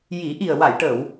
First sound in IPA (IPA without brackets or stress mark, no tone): j